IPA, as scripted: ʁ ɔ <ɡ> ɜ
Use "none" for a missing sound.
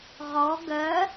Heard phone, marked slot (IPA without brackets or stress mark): ɡ